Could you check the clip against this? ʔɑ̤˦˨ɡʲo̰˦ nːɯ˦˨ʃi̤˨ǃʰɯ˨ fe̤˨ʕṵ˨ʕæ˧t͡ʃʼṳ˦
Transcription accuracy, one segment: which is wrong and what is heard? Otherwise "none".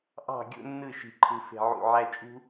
none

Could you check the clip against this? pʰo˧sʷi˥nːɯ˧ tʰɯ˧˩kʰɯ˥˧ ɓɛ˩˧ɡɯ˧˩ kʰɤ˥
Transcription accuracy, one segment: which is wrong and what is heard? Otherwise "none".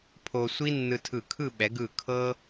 none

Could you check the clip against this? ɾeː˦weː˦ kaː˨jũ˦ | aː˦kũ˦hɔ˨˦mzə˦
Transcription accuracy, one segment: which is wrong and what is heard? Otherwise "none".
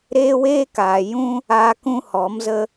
none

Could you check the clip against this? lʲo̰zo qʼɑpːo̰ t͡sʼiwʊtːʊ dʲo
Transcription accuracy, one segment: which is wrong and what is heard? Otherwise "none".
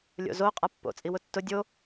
ɑ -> a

